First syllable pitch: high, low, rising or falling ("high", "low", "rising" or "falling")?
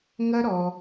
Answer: high